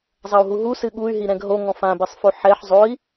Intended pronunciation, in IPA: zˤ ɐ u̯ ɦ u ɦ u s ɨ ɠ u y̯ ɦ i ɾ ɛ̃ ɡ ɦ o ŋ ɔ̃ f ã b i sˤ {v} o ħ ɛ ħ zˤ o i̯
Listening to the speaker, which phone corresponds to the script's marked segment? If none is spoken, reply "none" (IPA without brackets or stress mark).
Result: f